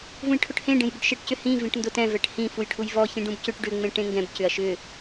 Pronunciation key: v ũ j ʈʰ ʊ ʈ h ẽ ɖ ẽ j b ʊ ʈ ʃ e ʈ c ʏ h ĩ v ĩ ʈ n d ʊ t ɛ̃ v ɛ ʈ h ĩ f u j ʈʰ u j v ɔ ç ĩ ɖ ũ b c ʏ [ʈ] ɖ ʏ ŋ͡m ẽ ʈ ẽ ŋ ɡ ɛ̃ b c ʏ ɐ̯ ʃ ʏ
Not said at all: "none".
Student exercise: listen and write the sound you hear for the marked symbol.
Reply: ʈ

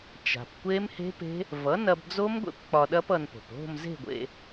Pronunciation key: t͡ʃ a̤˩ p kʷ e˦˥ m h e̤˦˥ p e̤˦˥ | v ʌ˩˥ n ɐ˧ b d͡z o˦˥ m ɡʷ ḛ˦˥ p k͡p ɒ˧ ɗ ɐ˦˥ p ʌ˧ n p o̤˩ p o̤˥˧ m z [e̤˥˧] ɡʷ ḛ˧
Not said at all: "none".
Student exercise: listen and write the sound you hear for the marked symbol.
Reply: e̤˥˧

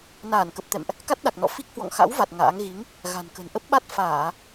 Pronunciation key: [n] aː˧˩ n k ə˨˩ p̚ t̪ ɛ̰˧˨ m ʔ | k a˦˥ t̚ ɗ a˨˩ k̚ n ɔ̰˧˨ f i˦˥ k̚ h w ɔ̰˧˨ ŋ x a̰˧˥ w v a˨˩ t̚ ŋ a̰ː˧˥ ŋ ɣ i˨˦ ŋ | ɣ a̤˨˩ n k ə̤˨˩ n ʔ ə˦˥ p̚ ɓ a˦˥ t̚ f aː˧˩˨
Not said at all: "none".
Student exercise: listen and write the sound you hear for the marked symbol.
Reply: n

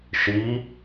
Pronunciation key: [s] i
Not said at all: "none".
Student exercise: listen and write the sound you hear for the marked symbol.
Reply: ʃ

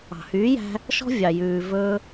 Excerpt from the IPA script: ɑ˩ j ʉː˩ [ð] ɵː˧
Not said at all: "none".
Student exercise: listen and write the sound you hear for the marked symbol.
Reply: v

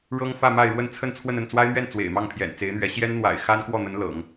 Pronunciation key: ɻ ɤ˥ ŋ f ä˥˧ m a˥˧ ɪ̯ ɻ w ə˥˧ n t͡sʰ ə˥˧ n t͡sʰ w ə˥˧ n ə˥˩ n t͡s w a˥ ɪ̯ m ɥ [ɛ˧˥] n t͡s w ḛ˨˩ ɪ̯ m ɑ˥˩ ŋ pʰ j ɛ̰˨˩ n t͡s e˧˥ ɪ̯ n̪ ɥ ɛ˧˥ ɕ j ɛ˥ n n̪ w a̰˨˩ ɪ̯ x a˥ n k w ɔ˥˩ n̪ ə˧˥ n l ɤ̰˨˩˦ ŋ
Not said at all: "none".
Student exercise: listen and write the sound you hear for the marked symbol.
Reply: ɛ˥˩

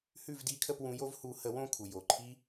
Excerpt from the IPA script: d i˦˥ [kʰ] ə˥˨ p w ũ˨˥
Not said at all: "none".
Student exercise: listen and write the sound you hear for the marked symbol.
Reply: kʰ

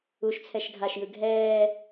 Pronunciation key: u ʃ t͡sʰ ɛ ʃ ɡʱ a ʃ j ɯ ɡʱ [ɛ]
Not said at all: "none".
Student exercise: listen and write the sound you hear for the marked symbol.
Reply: ɛː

